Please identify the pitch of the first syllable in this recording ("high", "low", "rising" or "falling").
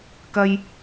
high